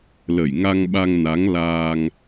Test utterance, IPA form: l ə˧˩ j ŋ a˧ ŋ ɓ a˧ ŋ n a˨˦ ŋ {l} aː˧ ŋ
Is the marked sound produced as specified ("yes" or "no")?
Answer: yes